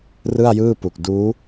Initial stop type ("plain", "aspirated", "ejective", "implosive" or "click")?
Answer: plain